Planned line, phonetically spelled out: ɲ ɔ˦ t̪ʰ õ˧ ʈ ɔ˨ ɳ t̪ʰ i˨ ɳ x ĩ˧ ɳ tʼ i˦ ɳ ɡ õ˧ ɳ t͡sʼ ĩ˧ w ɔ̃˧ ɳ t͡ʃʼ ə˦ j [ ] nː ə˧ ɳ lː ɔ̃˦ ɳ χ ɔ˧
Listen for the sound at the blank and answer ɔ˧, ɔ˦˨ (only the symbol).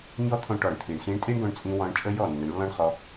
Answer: ɔ˦˨